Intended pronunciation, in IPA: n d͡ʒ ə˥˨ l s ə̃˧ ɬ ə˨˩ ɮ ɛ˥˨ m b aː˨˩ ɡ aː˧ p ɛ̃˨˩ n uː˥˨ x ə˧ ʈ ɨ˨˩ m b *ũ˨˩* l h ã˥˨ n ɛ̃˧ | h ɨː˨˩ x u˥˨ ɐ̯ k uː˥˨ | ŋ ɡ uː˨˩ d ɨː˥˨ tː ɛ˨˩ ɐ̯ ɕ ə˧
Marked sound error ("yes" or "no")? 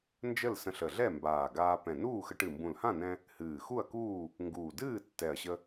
no